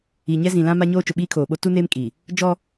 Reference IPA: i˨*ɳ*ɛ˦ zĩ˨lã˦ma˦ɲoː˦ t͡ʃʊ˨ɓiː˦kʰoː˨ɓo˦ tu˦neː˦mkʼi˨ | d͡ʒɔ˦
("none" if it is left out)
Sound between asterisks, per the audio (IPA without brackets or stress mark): ɲ